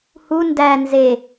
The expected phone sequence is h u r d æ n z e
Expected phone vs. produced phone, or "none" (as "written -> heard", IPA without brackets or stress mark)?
r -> n